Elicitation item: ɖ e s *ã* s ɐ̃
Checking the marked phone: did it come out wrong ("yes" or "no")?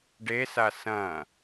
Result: yes